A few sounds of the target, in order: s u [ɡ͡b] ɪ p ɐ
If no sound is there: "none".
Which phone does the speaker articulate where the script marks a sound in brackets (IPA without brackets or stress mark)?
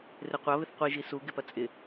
ɡ